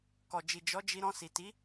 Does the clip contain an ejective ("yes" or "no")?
no